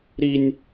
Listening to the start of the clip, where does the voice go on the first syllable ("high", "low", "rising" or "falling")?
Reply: high